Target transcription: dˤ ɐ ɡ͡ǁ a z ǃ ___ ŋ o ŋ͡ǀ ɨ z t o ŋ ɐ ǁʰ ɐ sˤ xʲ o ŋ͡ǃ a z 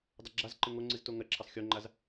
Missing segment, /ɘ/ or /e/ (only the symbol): ɘ